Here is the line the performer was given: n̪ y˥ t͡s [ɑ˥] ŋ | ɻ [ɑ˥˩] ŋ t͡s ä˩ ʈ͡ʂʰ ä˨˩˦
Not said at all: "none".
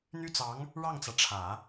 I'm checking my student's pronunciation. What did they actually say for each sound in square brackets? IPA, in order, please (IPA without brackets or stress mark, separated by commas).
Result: ɑ˧˥, ɑ˥˩